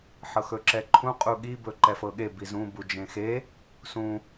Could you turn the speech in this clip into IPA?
ħɤxɵǁɛǃʰũ qʼuɠi bɵǃɛfɤɠe bizũ bud͡ʒẽxe | sũ

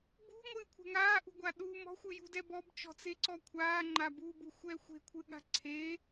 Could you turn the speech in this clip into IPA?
bṳŋʷɨːkʷʰɛ̤ ŋaːʔṳɡʷa ɗu mɔ̤xʷɨjṳdɛ bɔbt͡ʃɔ̤t͡seǀɔ kʷʰaːŋ͡ǃa bubuxʷɛ xʷe̤kʷʰɨɠa̤ ǀʰe

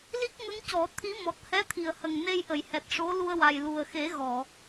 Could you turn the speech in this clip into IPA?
li˦˥k̚ŋə˧˥ŋ cɔ˨˩˦ t̪ʰi˧˥ mɔ˨˩t̚hɛ˧˥ t̪ʰi˨˩ə̯hə˨˩ŋne˧jʔə˨˩˨j hɛ˨˩t̚ʂo˧˥ lu˧ə̯wa˨˩j lu˨˩ə̯xe˨˩˦ ɣɔ˨˩˨

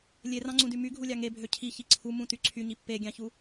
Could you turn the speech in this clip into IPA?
lʲerɑ̃ŋ͡ǀũdy myɡʱulʲɑ ŋebʱø cʰiçi ǀʰumũty ǀʰyɲi pːeɡʲɑ̃çu

